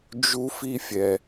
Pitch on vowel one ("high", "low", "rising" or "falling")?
high